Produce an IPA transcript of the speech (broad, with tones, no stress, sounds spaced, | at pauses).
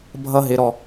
bʱ ʌ˧ ɦ ɪ˩˧ ɾ ɔ˩